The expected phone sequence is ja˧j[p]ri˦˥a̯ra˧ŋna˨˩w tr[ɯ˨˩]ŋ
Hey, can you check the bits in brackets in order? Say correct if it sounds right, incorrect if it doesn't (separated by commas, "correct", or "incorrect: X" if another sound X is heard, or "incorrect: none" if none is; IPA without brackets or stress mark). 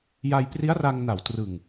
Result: correct, correct